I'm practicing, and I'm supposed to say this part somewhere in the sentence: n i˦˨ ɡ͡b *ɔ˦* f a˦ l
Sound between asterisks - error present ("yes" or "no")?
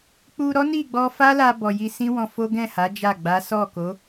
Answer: yes